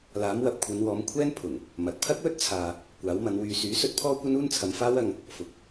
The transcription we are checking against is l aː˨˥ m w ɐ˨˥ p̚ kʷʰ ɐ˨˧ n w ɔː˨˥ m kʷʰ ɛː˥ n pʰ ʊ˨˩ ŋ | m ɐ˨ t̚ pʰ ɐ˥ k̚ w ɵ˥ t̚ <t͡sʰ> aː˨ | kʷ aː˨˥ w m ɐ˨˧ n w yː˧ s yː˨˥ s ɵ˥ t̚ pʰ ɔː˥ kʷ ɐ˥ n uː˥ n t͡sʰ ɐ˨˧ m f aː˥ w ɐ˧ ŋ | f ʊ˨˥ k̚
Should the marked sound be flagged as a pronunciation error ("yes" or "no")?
no